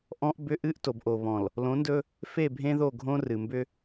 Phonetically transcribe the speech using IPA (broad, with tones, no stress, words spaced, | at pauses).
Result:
ʔɔ̃˦ʔ bʏ˦ ʔɨ˦ʔ to˨bʔo˨βɔ̃˨l | lõ˨˦ndɵ˦ | fe˦˨bʱẽ˦ðo˦˨ɡʱõ˦ rɨ˨mbʏ˦